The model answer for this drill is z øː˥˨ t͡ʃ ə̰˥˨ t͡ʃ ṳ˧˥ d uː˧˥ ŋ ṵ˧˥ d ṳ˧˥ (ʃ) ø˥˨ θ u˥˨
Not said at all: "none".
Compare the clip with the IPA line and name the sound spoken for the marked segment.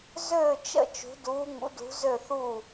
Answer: z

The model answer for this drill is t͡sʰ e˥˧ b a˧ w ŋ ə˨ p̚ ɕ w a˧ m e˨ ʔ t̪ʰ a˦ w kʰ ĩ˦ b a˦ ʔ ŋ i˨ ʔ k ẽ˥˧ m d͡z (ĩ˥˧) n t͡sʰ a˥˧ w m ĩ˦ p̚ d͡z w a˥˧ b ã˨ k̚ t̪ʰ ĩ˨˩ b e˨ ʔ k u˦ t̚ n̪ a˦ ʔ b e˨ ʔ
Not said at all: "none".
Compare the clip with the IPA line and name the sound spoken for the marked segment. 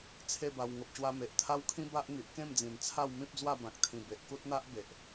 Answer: ĩ˨˩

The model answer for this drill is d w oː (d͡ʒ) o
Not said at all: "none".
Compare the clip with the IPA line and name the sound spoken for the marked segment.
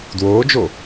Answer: d͡ʒ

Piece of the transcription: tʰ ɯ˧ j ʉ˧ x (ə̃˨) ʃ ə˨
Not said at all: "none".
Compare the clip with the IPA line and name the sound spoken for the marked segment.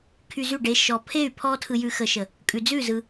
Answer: ə˨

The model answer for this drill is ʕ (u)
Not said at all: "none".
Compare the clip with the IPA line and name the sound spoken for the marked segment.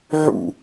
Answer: ṵ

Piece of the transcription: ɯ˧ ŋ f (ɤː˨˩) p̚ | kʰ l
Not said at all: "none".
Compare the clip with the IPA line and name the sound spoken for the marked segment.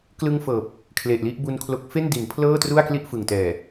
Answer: ɤː˨˩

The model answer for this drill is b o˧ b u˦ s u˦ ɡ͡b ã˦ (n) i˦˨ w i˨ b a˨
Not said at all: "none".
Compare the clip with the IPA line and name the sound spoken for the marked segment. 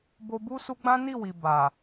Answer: n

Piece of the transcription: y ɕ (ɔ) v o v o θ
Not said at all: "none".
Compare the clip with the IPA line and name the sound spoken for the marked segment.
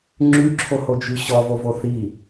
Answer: ɔ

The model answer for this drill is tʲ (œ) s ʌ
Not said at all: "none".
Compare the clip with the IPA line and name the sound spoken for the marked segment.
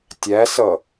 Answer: æ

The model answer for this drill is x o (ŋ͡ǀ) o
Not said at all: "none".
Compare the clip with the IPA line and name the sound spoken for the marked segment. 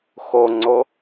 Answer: ŋ͡ǀ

